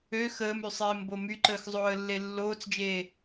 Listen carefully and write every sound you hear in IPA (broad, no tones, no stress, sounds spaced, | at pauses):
ø x əː m y sˤ eː m b o m y ǃ əː x zˤ oː ə̯ lː e lː oː t͡s d͡ʒ eː